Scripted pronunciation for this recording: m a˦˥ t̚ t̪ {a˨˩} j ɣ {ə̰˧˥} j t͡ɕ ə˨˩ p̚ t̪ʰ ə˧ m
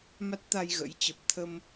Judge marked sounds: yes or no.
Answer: no, yes

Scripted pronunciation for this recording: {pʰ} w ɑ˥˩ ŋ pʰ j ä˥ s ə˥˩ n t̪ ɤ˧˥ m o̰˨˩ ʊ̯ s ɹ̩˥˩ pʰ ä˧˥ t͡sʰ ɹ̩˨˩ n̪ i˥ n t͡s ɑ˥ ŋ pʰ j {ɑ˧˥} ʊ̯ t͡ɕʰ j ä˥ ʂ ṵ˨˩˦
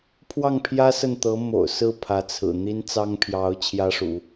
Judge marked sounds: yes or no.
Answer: yes, yes

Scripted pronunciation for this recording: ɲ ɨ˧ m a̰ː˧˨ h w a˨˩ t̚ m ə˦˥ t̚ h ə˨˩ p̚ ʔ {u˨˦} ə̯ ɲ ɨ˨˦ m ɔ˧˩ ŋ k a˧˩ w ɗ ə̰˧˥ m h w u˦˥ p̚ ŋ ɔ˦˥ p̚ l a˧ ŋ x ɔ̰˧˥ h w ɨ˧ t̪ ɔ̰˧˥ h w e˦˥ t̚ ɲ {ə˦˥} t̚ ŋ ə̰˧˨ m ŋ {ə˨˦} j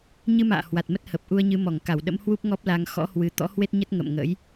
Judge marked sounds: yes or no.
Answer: no, yes, no

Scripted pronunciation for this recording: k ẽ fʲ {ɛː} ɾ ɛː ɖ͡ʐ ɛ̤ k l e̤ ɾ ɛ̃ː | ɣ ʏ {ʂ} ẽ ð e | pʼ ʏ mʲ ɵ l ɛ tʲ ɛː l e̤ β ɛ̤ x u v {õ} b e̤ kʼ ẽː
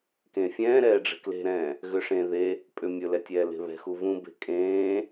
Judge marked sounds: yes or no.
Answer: no, yes, no

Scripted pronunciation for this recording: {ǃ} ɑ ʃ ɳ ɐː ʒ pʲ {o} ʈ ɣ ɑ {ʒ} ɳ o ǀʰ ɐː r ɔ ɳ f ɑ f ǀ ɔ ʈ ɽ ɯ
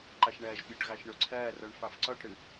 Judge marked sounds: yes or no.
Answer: yes, yes, no

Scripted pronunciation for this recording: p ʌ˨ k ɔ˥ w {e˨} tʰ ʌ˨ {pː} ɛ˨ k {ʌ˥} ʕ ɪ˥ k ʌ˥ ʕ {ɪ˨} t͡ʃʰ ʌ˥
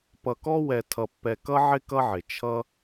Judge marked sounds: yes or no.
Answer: no, yes, yes, no

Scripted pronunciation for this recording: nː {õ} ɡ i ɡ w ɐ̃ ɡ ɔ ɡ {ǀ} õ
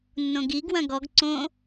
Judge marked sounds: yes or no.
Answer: yes, yes

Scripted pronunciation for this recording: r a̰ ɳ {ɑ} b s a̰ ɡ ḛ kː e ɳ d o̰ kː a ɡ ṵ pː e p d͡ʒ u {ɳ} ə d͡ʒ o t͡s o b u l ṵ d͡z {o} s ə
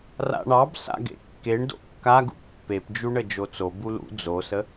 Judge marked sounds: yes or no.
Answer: yes, yes, yes

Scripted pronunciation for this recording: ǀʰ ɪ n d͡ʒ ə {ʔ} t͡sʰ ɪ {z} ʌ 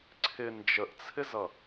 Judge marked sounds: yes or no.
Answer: yes, yes

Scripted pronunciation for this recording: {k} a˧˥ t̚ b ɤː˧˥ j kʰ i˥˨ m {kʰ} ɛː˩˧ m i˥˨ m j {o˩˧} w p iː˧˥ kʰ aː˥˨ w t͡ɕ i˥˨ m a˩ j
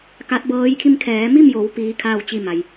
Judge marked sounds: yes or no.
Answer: yes, yes, yes

